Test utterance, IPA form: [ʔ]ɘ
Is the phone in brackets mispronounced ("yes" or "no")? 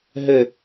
yes